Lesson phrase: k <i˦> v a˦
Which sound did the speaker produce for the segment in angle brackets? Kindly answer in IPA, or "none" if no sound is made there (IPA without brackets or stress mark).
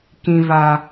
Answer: ĩ˦